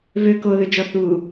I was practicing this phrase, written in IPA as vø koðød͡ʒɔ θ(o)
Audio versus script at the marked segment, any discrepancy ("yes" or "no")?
yes